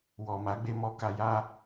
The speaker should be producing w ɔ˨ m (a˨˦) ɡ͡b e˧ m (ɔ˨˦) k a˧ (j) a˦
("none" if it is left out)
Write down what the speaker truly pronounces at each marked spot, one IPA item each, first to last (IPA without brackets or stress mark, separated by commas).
a˨˦, ɔ˧, j